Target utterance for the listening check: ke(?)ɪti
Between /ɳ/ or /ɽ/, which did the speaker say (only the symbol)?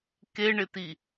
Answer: ɳ